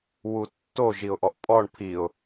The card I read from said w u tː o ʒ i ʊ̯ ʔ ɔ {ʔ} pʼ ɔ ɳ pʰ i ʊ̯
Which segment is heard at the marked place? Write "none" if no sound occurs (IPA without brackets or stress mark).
ʔ